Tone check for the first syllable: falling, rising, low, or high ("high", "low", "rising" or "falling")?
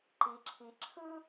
low